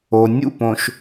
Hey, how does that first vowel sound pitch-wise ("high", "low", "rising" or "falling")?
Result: low